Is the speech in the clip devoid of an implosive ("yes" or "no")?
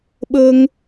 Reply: no